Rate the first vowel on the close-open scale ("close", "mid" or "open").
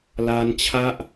open